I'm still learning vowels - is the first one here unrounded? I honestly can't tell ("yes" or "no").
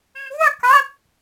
no